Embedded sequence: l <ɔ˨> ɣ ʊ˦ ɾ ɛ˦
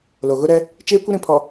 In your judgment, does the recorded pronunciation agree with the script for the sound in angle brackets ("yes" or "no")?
no